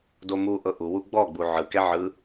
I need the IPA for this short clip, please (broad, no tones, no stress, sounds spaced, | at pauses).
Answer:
d o m u ʔ ɤ ʔ u w u ɡ͡b ɔ ɡ͡b u ʕ ɯ k ɛ ʕ ɯ